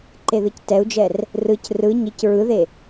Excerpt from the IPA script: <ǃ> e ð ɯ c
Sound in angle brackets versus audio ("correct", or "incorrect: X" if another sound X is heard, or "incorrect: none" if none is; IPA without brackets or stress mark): correct